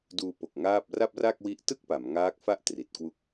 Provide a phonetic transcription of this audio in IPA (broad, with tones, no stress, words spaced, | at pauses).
duː˧po˨˩k̚ ŋaː˥˩p̚ ra˥˩p̚ra˥˩k̚wi˦˥ʔ tɯ˥˩k̚pa˩˦m ŋaː˦˥k̚fa˥˩ʔ tri˨˩t̚ kwu˦˥k̚